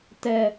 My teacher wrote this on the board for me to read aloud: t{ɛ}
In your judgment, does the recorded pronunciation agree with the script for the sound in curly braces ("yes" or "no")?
yes